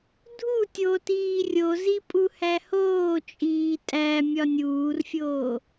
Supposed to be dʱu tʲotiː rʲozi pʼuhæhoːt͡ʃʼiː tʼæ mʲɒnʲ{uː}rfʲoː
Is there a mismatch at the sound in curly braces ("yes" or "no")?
no